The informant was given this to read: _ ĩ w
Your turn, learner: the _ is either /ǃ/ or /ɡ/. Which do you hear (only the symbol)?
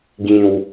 ɡ